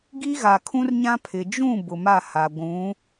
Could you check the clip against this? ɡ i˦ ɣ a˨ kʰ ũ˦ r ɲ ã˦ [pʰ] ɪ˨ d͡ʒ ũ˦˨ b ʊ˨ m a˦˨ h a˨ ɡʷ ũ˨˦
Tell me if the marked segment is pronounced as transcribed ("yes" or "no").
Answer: yes